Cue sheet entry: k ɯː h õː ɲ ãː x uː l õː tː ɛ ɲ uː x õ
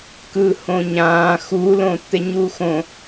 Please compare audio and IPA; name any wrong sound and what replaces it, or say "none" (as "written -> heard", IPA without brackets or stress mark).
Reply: none